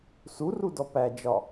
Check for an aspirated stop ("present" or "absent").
absent